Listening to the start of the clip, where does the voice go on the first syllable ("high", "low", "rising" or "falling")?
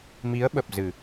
rising